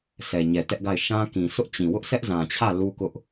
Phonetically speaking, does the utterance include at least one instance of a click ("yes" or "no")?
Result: no